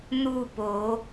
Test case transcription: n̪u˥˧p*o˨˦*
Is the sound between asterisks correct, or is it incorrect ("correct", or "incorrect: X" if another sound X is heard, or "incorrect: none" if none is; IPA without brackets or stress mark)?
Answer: correct